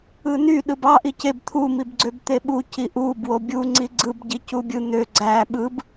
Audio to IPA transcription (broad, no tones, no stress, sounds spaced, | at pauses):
ɯ n y ɗ ɯ b ɑ ʔ i c e b t̪ʰ u m i b ɡ͡ǀ ø b t̪ e ɓ u c i ʔ u b w o bʲ u ŋ͡ǀ i ɡ͡ǀ ɯ b ɟ i c u bʲ ɯ n̪ ø ɡ͡ǀ æ ɓ ɯ b